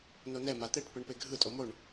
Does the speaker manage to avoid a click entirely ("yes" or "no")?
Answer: yes